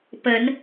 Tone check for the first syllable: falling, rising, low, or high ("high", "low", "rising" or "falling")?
rising